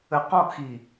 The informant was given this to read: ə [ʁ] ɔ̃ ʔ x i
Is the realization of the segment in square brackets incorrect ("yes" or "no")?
yes